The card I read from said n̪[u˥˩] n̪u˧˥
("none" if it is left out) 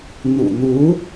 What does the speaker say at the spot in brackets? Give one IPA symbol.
ṵ˨˩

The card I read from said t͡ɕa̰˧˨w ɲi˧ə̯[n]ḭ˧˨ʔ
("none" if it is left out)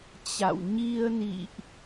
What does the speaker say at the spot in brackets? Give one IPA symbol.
n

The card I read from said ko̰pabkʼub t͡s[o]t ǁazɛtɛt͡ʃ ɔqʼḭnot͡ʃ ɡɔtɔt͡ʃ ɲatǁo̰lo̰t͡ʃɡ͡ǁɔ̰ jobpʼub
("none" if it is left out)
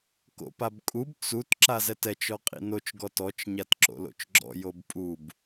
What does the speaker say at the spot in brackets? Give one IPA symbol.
u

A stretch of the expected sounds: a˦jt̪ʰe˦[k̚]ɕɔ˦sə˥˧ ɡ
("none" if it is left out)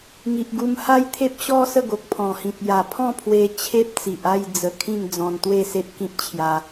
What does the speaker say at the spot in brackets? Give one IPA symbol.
p̚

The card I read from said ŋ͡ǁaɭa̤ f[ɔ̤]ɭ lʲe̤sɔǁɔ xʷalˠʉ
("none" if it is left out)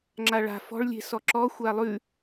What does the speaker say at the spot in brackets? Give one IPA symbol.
ɔ̤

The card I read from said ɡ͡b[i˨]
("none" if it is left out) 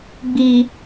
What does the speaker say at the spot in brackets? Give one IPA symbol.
iː˨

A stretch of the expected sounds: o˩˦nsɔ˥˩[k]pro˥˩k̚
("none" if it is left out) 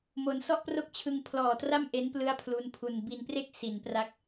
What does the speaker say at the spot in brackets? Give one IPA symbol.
ʔ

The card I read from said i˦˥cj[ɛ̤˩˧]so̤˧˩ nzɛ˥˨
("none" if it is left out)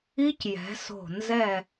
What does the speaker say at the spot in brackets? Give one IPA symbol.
ɛ̤˩˧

